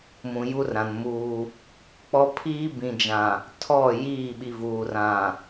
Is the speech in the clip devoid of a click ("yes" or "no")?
yes